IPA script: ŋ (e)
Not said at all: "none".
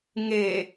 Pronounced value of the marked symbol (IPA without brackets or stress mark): e